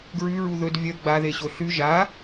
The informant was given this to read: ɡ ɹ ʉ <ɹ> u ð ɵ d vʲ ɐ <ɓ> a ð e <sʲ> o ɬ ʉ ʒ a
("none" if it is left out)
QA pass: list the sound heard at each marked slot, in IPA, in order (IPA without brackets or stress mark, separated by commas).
ɹ, ɡ͡b, ɕ